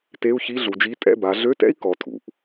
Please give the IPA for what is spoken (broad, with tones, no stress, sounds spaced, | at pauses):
t e˧˥˧ u̯ ç i˧˥˧ ɮ u˩˧ d͡ʒ i˧˥˧ tʼ ɛ̰˥˩ b a˩˧ ɮ ø˧˥˧ t ɛ̰˥ i̯ k ɔ˩˧ tʰ ṵ˩ ʔ